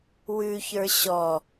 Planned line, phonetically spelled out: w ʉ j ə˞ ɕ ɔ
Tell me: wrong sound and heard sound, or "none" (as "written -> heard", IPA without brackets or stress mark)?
j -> ç